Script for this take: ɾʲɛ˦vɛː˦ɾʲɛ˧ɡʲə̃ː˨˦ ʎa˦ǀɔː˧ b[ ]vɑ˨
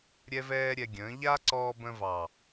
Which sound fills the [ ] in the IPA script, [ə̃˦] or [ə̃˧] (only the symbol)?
ə̃˧